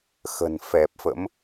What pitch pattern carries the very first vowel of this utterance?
low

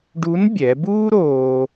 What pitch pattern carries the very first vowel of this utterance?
rising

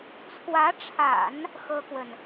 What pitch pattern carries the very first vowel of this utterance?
rising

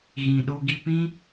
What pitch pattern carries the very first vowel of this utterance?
low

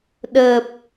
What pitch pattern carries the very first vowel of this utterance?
low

